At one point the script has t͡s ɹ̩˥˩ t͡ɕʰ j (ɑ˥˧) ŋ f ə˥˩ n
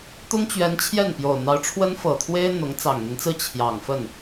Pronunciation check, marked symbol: incorrect: ɑ˨˩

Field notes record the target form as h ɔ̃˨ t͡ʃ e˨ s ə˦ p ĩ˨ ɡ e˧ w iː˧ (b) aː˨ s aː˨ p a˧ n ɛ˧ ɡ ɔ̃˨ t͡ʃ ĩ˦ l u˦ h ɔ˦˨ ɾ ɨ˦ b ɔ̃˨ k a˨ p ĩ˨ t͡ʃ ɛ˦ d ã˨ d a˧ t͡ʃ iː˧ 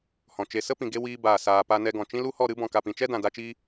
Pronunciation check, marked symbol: correct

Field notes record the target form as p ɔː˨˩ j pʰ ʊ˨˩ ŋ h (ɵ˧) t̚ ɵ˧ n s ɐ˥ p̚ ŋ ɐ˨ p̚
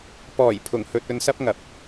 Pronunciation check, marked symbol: correct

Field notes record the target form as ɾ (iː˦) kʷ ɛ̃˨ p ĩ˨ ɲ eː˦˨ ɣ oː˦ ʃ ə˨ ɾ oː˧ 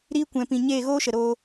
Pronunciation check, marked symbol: incorrect: iː˧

